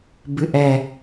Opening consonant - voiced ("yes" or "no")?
yes